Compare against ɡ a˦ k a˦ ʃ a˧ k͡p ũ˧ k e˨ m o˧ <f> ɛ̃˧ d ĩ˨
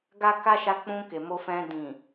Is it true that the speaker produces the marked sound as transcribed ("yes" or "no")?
yes